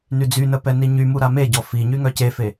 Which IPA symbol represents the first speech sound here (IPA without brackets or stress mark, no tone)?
n